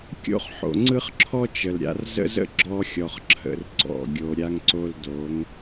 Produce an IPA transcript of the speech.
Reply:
kʲ o̰˦ χ ħ o̰˨ ŋ͡ǀ ɯ˦ χ ǁʰ ɔ˦ t͡ʃ ə˨ l ɾʲ a̰˦ r z ə̰˦ z ə̰˦ ɡ͡ǁ ɔ˦ xʲ ɔ˨ χ ǁʰ ə̰˦˨ r ɡ͡ǀ ɔ̰˦˨ ɡʲ o˨ ɾʲ a˦ ŋ ǀ o˦ l d o˨˦ ŋ

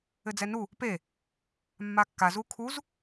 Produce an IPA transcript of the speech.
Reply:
ɘ d͡z ɛ n u | p e | mː a kː a z u kʰ u z

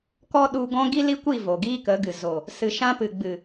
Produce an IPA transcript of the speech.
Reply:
k ɔ˦ ɗ u˧ ɡ ɔ̃˦ ɡ i˦ l i˦ kʷ i˦˨ v o˨ ɡ iː˦ k ə˨˦ ɡ ɨ˨ z o˨ | s ɨ˨ ʃ ã˧ p ɨ˨ ɡ͡b ɨ˨

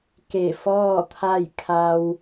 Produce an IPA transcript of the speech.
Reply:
k e˧˩ f ɔː˥˨ t̪ʰ a˥˨ j kʰ a˧ w

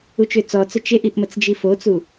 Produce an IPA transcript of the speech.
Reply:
u t͡ʃ ø t͡s ɔ t͡s œ t͡ʃ e ʔ i ʔ m ə t͡s d͡ʒ i f o t͡s u

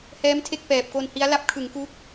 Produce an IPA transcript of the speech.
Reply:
h ɛː˦˥ m tʰ e˦˥ k̚ p ɛː˨˩ p̚ k o˧ n h i˦˥ a̯ l a˦˥ p̚ kʰ ɯ˩˦ ŋ k u˦˥ k̚

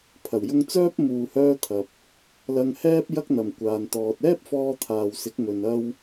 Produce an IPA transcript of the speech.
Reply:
pʰ ɐ˨˩ w j ʊ˧ ŋ t͡s œː˥ p̚ m uː˧ h œː˥ t̪ʰ ɐ˨ p̚ | l ɐ˧ ŋ h ɛː˥ p̚ j ɐ˥ k̚ n̪ ɐ˨ m kʷ aː˧ n t̪ ɔː˧ t̚ ɛː˥ p̚ f ɔː˧ t̪ʰ aː˨ w s ɪ˨˥ k̚ m ɵ˧ n ɐ˥ w

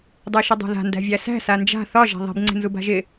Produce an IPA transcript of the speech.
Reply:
dˤ e ʃ ɪ dˤ æ̤ ð a̤ n d æ̤ vʲ æ s æ̤ s a n d͡ʒ a̤ θ ɒ ʒ a̤ ðˤ e̤ b ŋ͡ǀ e̤ n z u b a̤ ʒ ɪ

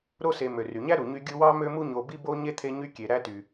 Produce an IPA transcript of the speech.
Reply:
ɾ o˦ s e˨ m ø˩ r y˩ ɲ æ˥ ɾ u˩ ɲ y˦ ɡʲ ɯ˦ w ɑ˥ m ø˥ m u˥ ɲ o˨ b i˥ b o˥ ɲ e˥ t̪ʰ e˦ ɲ y˦ kʲ e˩ ɾ æ˦ t y˩

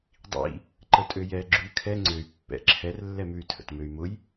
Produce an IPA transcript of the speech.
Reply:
dˤ ḭ | ǃ ə tʼ ø j ɛ ɡ͡ǁ ʉ kʰ ɛ ŋ͡ǀ ø y̯ pː ɛ̰ ǁʰ ɛ r lː ɛ m ʉ y̯ tʰ ə̰ t m ø y̯ m ʊ j

